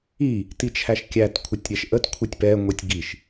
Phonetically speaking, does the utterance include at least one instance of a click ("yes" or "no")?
no